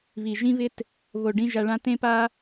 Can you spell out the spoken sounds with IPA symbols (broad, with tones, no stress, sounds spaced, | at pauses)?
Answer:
β i˨ ʒ ĩ˦ β ɪ˦ t | β o˨ ɖ ĩ˧ ʒ a˧ ɭ ã˦ t ẽ˦ p a˦